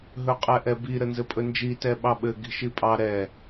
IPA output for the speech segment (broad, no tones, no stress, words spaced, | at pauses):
ɦɵqʼɛʔɛbi ɾənzɘpʼɵnd͡ʒi tɛɓɑɓɘ ɡi̤ʃipʼɑ ɾɛ